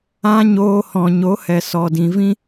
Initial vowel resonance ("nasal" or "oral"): nasal